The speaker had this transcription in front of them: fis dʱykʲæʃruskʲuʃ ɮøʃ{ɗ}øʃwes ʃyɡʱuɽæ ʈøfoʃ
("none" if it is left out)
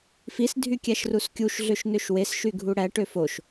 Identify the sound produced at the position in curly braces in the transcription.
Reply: n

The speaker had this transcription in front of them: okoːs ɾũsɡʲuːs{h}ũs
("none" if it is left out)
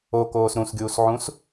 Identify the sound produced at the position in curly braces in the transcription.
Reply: ʕ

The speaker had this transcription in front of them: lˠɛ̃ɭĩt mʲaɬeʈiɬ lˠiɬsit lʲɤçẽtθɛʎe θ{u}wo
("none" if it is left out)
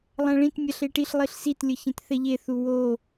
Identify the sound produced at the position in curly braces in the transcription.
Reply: u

